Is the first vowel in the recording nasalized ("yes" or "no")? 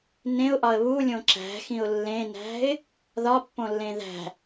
yes